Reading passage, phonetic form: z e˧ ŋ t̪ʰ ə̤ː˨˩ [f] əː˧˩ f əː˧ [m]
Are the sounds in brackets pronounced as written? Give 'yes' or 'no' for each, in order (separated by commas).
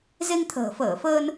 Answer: yes, no